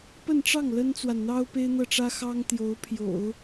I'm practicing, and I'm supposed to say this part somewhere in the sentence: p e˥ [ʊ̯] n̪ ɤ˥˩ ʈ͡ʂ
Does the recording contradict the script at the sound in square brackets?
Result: yes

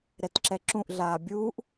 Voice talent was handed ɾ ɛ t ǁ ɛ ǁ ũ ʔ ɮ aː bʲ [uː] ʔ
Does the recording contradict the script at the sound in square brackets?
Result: no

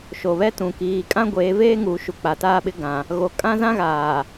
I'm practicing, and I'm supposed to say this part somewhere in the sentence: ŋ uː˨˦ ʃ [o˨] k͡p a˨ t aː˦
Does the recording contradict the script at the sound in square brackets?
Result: yes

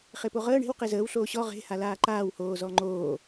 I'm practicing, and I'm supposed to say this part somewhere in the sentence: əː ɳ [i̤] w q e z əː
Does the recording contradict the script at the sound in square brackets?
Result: yes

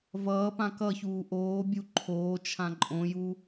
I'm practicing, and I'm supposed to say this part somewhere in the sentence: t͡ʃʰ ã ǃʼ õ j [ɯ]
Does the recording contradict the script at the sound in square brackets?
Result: yes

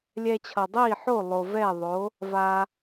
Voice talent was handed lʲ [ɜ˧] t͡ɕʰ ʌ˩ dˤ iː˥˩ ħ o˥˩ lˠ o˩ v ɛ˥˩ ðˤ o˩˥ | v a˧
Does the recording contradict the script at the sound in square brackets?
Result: yes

